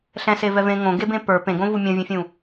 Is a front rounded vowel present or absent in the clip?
absent